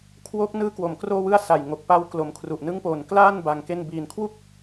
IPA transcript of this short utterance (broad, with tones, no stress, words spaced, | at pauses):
kʰwo˦˥k̚nɯː˦˥kwo˩˦m kroː˥˩wɯ˥˩a̯ sa˨˩jŋo˨˩k̚ pa˦˥w klo˨˩mkʰru˨˩ʔnɯ˦˥ŋpoː˨˩n klaː˥˩n ba˧ŋke˥˩n biː˨˩nkʰwu˥˩k̚